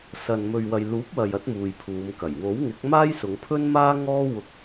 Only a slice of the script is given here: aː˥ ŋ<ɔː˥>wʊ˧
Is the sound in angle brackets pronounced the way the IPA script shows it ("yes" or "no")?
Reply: yes